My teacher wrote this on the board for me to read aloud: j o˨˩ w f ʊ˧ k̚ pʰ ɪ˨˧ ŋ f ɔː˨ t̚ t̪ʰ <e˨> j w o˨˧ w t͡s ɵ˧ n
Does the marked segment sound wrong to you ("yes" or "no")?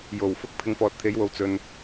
yes